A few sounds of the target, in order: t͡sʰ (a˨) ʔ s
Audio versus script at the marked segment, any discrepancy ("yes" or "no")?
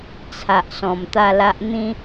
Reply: no